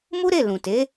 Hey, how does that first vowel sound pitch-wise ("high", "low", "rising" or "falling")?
high